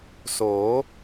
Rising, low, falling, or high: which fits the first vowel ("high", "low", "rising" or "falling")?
rising